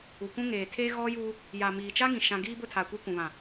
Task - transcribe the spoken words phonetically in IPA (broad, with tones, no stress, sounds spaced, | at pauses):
u˨ kʷ ũ˦ ŋ eː˨ tʰ eː˦ ɣ ɔ˦ j uː˦ | j a˨ m iː˨ t͡ʃ a˦ ŋ ĩ˨ ʃ ã˦ ɡ iː˦ b ʊ˦ tʰ a˨ kʷ i˦ kʷ ũ˨ β ã˨